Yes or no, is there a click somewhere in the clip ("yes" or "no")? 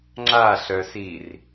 yes